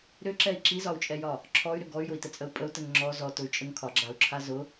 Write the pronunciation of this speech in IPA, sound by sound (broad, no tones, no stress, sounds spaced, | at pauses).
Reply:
ɾ ʏ ǁ ɛ i̯ ǁ i z ɒ u̯ t͡ʃʼ ɛ j ɒ | ǁʰ ɔ y̯ ɾ ʏ ɡ ɔ y̯ j ʊ i̯ t ə t͡sʼ ə u̯ pʼ ə u̯ t ə ŋ ŋ͡ǁ ɔ z ɔ t ʊ y̯ t͡ʃʼ ə ŋ kʰ ɒ ɡ͡ǁ a u̯ ǁʰ a z ʊ